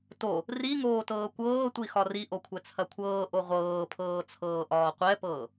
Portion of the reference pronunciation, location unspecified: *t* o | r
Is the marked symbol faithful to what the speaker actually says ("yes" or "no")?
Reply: yes